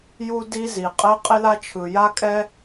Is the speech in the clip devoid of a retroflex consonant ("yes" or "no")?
yes